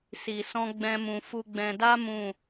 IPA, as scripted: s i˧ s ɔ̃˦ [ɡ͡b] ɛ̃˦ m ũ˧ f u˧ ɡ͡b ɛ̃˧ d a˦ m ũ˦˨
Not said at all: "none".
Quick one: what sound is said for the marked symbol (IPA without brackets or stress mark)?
ɡ͡b